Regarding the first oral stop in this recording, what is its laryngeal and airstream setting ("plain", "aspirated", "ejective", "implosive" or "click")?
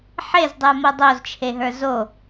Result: plain